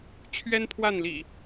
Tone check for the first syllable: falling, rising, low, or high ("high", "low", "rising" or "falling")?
high